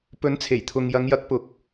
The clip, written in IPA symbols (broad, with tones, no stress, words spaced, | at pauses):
pɵ˨˥nt͡sʰe˨˩jt̪ʰʊ˨ŋ jɐ˨˧ŋjɐ˨˥k̚ pʊ˨˥k̚